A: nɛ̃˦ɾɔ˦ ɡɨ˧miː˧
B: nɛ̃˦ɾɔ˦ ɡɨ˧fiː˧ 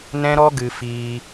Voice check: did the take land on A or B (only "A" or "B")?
B